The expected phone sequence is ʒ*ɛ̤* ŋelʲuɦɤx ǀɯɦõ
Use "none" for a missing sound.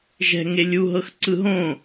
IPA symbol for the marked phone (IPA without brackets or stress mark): ɛ̤